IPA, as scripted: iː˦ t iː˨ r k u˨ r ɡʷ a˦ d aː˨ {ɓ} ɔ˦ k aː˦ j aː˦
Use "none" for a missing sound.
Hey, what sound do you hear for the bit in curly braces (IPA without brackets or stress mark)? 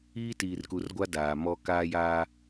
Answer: m